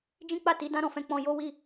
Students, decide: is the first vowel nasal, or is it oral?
nasal